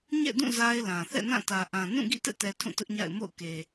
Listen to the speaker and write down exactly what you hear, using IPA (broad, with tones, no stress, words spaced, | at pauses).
ɲɛ̰˦˨dũ˦˨ za˦ɪ̯lã˨ θɛ̰˦˨nã˦˨tä˨ ʔã˨ nũ˦˨ɡḭ˦˨tɛ̰˦˨tɛ˨ tʰũ˦˨tʊ˦ʔɲa̰˦˨ɪ̯ mo̰˦˨ʊ̯ke˨